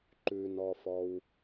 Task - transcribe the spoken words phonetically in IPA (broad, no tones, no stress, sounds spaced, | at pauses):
ǃ ʉ n ɔ f ɔ w